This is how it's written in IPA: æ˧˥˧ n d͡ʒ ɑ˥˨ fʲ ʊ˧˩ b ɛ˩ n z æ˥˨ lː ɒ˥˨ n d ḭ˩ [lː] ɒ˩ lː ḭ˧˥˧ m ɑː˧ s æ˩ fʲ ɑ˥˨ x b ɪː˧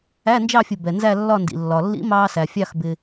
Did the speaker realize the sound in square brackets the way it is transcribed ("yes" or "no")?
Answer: yes